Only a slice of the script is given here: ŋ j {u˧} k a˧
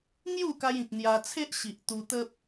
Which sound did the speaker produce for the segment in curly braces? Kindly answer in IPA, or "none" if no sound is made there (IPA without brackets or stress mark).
u˥˧